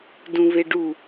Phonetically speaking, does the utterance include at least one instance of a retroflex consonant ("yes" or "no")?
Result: yes